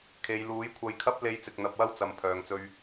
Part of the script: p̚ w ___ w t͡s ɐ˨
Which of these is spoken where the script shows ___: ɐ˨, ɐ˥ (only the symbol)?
ɐ˥